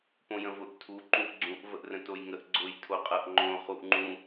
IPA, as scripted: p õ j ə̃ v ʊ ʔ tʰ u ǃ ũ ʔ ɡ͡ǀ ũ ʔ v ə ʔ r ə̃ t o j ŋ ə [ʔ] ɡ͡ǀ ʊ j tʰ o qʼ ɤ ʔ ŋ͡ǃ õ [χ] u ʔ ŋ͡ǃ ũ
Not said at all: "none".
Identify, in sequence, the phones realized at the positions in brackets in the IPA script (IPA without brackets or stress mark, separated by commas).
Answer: ʔ, χ